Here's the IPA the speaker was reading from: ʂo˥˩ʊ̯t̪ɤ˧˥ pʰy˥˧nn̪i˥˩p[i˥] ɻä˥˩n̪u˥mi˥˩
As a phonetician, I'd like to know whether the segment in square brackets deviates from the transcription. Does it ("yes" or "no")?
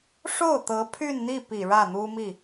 yes